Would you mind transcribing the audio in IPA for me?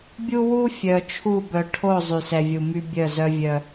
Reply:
bʲ u˦ w u˦ fʲ œ˨ t͡ʃʰ u˦˨ b œ˨ ʈʰ o˦˨ zˤ y˨ s ɛ˨ vʲ u˨ m y˦ bʲ œ˦˨ z œ˦ vʲ œ˦

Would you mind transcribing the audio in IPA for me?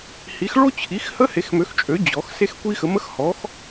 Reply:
h i˨˥ x ɭ o˥ t͡ɕʰ i˨˥ x h ə˥ h e˨˥ x m ø˨˥ x t͡ʃʼ ø˨˥ d͡ʑ ɔ˨˥ x s e˥ x kʷ i˥ x ə˨˥ m ə˥ x h ɔ˨˥ x

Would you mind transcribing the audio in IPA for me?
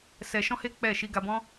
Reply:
s ɛ˧ ʃ ɔ̃˦ h e˦ k͡p ɛ˦˨ ʃ i˧ ɡ a˧ b ɔ̃˦

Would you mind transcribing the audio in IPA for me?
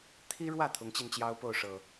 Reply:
t̪ʰ i˦ ɻ w ä˥˨ t̪ʰ ʊ˨˦ ŋ t͡ɕ i˧ n t͡ɕ j ɑ˦ ʊ̯ p o˥˨ ʊ̯ ʂ ɤ˨˩

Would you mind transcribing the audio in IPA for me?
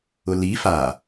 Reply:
ʊ l i f a

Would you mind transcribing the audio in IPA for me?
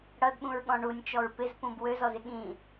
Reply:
ɽ ʌ d ɓ ũ ɹ ɠ ɔ̃ ɳ u nʲ t͡ʃ ɔ ɹ p ɪ z p ũ b w ø z ɔ z ɪ ɠ ĩ

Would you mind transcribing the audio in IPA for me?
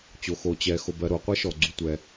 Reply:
t͡ɕ o˨ x o˨ t͡ɕ ɛ˨ x o˨ b ɜ˨ ɾ o˨ qʷ ɛ˥ ʃ ɔ˨ ɡ͡ǀ u˨ tʷ ɛ˨

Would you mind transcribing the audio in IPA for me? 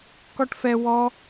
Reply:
k ɔ ʈ f ɛ w ɔ

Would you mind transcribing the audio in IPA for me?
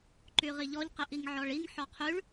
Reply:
ǃ y ʁ i ʎ ɔ ʎ q i ʔ i ŋ ʕ ɔ ɭ i ŋ ħ ɔ qʰ y ɭ

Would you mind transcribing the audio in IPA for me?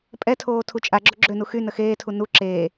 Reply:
pʼ ɛ tʰ oː tʰ u t͡ʃʼ a ɡ͡ǁ o ɡ͡ǁ ø n u x y n ə x eː tʰ u n u ǁ eː

